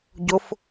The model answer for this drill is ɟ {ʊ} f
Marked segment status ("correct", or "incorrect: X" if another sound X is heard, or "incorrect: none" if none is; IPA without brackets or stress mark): correct